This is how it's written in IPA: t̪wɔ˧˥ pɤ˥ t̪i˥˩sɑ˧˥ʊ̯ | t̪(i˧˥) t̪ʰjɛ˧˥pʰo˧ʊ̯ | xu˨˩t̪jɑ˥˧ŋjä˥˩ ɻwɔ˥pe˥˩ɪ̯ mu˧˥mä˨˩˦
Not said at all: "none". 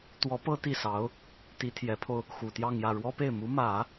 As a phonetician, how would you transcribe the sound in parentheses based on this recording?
i˧˥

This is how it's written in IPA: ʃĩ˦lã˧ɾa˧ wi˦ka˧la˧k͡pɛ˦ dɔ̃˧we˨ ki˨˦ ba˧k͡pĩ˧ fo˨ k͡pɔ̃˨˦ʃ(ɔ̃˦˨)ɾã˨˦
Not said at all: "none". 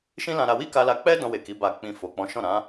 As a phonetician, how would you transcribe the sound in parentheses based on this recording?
ɔ̃˦˨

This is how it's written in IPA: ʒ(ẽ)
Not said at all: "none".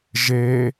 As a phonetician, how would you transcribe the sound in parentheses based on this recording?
e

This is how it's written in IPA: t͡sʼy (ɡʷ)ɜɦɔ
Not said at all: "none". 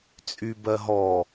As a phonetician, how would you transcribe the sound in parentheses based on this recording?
b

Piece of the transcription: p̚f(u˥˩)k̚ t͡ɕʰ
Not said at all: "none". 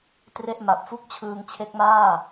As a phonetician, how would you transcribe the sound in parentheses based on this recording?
u˥˩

